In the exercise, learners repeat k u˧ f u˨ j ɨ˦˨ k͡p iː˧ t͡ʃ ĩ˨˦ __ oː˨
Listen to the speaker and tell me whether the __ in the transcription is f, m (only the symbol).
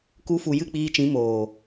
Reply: m